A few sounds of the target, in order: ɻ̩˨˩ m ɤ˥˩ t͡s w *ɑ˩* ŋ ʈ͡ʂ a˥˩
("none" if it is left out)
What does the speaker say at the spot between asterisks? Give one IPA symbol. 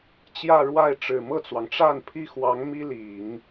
ɑ˩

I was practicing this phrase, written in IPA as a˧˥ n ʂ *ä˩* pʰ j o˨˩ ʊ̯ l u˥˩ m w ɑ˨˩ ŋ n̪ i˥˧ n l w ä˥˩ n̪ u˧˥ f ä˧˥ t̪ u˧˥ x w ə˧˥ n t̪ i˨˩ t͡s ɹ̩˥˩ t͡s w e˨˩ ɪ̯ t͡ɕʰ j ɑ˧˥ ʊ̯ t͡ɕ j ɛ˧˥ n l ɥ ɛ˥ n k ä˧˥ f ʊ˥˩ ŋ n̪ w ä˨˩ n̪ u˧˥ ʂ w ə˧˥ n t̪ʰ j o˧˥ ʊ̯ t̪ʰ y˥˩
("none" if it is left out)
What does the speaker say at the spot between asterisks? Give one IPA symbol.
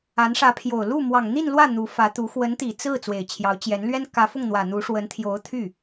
ä˧˥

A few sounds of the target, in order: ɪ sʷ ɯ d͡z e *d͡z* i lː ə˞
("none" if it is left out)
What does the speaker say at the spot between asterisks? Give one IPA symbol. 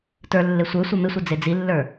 d͡z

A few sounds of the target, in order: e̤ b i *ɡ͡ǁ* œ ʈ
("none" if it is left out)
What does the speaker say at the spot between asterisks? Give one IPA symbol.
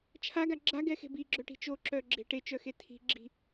ɡ͡ǁ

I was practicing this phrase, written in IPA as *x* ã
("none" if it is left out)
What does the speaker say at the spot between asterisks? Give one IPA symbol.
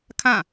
kʰ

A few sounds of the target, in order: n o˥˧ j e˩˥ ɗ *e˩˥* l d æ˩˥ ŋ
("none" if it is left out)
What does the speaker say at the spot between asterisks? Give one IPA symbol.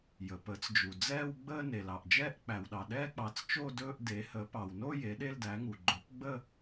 e˥˧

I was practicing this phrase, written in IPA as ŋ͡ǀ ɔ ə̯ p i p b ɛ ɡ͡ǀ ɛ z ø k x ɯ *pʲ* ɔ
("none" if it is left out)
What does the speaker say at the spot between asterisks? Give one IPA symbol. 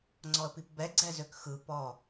p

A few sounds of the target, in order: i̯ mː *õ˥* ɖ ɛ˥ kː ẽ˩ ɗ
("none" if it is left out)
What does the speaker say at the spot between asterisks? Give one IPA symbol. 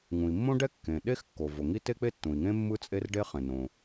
õ˥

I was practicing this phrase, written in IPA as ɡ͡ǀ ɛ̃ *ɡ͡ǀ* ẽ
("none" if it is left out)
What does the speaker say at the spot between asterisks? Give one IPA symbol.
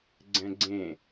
ɡ͡ǀ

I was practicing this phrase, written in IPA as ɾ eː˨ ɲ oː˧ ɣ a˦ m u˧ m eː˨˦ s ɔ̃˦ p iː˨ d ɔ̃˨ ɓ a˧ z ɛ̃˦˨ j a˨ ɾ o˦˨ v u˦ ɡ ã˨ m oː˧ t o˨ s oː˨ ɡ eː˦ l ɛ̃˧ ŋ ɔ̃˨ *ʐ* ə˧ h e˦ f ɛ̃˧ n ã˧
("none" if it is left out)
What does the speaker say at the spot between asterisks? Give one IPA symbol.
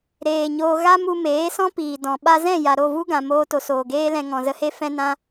z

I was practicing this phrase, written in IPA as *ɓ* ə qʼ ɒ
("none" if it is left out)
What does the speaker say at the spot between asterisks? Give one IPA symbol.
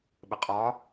ɓ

